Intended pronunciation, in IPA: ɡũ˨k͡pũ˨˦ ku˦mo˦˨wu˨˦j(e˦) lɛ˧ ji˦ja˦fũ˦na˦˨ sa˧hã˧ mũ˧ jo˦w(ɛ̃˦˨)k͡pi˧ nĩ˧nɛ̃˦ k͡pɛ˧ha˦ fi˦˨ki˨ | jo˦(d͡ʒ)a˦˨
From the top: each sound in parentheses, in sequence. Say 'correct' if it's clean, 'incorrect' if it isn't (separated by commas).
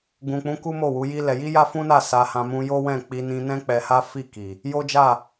incorrect, correct, correct